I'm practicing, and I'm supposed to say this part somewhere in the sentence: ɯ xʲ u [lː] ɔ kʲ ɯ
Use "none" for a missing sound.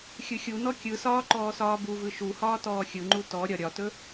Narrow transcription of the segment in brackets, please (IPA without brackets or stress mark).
n